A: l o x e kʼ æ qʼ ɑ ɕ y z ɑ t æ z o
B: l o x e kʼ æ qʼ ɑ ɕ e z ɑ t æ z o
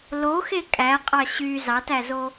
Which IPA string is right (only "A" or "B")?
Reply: A